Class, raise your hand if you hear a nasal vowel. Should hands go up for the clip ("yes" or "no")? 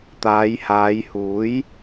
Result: no